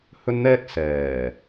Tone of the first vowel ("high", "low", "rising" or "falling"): high